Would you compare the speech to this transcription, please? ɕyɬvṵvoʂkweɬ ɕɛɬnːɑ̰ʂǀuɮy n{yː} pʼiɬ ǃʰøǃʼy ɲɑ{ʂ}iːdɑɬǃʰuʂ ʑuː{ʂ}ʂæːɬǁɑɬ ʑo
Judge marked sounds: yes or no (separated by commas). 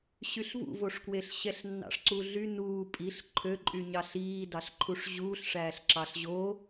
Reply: no, no, no